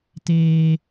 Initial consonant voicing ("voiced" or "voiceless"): voiceless